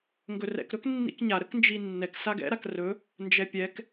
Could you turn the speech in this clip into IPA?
ŋɡɵrɛ̰k ɾɵknːḭkɲa ɾəknd͡ʒinːɛk saɡɛ̰ ɾakrɵ | nd͡ʒɛpʲɛk

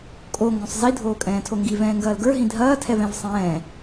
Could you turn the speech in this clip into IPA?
kʼo ŋɡõsˤzi dʱoːkʼɛ̃ːtʰoŋɡi vɛ̃ːŋɡɐːlɡə˞ ɦĩdʱɐː tʰɛvɛ̃vsˤɛ̃ː

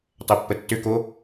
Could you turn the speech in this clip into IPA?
tˤœpːətːʏko

